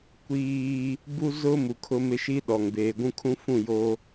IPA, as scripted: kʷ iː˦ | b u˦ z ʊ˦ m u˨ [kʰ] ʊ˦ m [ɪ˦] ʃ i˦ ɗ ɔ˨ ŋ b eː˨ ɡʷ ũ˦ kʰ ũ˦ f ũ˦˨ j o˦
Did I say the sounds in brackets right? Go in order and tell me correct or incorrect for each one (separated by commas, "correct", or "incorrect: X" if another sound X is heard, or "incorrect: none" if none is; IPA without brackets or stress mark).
correct, correct